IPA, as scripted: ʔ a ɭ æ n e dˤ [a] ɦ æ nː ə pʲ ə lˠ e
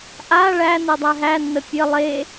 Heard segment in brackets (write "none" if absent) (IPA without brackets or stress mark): æ